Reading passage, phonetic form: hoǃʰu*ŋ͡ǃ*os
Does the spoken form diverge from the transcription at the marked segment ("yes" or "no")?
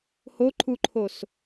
yes